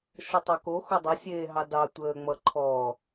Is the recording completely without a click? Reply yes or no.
no